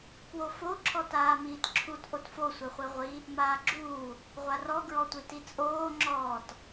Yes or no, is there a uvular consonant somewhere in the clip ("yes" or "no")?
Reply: yes